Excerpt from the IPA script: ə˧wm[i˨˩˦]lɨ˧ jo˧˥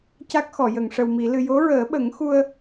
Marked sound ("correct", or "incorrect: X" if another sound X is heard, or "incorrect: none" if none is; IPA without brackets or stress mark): correct